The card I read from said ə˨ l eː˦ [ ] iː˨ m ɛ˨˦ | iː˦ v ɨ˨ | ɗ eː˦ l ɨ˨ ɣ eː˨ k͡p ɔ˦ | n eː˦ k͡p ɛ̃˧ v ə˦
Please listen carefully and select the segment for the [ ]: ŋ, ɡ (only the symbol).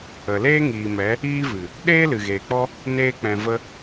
ŋ